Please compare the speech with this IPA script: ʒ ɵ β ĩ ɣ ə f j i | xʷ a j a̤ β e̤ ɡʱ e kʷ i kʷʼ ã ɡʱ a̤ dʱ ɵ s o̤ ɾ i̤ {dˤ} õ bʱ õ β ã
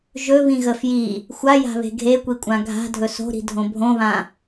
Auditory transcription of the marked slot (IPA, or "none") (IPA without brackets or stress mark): dʱ